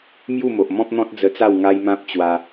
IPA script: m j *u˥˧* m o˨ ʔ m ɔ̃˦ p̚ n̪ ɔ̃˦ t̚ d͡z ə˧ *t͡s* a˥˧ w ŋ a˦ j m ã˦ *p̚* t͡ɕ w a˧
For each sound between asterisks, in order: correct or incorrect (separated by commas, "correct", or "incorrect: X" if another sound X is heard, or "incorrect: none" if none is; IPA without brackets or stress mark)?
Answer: correct, correct, correct